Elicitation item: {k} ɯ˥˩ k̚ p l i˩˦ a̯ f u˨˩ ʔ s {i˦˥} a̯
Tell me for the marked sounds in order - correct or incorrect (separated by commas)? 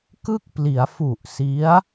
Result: correct, correct